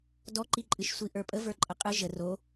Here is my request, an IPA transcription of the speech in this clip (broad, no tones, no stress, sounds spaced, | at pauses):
d ɔ ǃ i ǃʼ ɨ ʃ sʷ i ʔ ə˞ pʼ ə v ə˞ ǃʼ ə qʼ ɨ ʒ ə r o